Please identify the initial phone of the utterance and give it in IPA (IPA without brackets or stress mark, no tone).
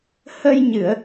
h